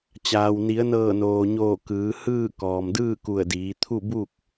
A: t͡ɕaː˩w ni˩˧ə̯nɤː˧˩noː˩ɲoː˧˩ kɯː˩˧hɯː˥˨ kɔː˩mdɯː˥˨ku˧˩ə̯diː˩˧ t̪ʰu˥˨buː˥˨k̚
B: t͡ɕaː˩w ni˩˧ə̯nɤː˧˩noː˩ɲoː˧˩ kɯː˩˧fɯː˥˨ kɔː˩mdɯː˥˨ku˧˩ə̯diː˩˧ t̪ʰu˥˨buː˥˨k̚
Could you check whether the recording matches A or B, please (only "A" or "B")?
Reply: A